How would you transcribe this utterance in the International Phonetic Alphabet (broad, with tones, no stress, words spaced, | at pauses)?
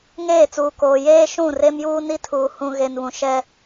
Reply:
ŋeː˦˨t͡suː˨koː˨ jeː˦ ʃũ˦˨ re˦mjuː˦ ni˦tʰuː˨ hũ˨ɣe˨nβũ˨ ʃɛ˦